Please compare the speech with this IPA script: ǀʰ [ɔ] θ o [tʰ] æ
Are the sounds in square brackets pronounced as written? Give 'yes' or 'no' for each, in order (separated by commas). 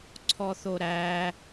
yes, no